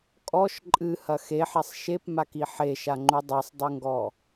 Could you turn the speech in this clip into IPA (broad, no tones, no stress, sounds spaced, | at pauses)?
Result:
kʼ ɔ ʃ ǃʼ ɨ h ɐ x e ħ ɛ sˤ ʃ e p m a k i ħ e ʃ a ŋ͡ǃ u dˤ a sˤ dˤ u ŋ ɡ ɔ